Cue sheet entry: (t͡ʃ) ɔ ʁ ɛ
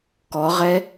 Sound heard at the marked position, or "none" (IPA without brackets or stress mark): k